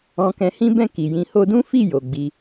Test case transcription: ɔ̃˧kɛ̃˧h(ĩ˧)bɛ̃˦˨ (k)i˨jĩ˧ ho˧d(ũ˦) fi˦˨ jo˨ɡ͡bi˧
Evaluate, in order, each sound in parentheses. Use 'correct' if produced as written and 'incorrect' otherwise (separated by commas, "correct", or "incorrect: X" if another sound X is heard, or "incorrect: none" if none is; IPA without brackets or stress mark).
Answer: incorrect: ĩ˦, correct, correct